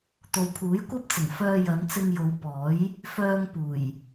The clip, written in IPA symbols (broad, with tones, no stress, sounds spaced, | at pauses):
t̪ o˨ w pʰ uː˨˥ j kʷ ɐ˥ p̚ t͡s ɪ˨˩ ŋ f œː˧ j ɐ˨˧ n t͡s ɪ˧ ŋ j o˨˧ w p ɔː˨˥ j | f œː˧ ŋ p uː˨˩ j